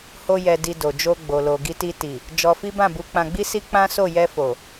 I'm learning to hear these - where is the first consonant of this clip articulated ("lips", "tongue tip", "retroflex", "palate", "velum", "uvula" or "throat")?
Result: throat